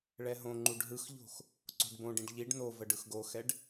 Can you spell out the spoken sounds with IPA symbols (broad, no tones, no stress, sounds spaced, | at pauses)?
ɭ ɛ ɦ õ ŋ͡ǃ u ɖ ɦ ɯ x ʎ o̤ x | ǀ o̤ ɖ b õ ɖ ĩ ɖ ʎ i ɖ n o v ə ɖ ɯ x ɡ o x ɛ ɖ